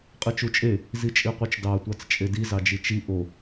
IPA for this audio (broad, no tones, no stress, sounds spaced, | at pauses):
qʼ ɯ t͡ʃ u t͡ʃʼ e | z i t͡ʃʼ i qʷ e t͡ʃ d ɑ tʷ ɑ t͡s t͡ʃʼ e d i z ɑ d͡ʒ i t͡ʃ i ʔ o